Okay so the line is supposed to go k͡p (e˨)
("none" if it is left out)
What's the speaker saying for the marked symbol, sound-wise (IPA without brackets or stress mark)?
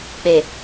e˨